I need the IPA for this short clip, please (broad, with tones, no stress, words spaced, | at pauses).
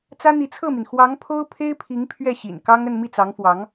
t͡sä˥n̪i˧˥t͡sʰɤ˥˩mi˩n xwɑ˧˥ŋ pʰo˥ʊ̯pʰe˥ɪ̯ pʰi˧˥ŋ pʰɥɛ˥˩ɕḭ˨˩nkɑ˥ŋ ə˥˧nmi˥˩t͡sɑ˧˥ŋfwɑ˧˥ŋ